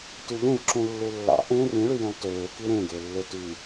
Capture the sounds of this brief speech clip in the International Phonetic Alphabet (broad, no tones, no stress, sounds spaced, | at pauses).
t y ʎ ẽ v ǁ ũ lː u lː ɑ̰ ʔ ẽ r ĩ ɭ y j ĩ lˠ t øː k i ɾ ẽ ɡ e lː e t y